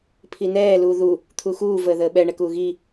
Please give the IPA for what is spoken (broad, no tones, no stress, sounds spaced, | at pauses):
pʰ i n ɛː l uː ð u | t̪ʰ u x uː v əː ð əː ɓ ɛ ɳ ɛ k uː ɣ i